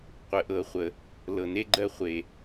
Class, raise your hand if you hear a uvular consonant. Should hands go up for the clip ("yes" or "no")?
yes